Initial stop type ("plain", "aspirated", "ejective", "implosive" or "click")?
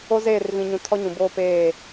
aspirated